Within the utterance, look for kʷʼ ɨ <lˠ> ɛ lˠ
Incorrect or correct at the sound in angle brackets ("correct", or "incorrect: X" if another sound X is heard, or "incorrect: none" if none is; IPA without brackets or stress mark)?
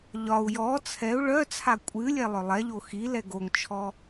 incorrect: lʲ